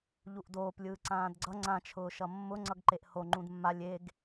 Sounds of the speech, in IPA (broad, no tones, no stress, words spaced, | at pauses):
ʎuʔdoːp lʲɯːǀãːdɡ͡ǀʌ ŋ͡ǀã t͡ʃʰʊːʃʌmːʊ ŋ͡ǀʌɡǃeʔho ŋ͡ǃũdmːalʲ eɡ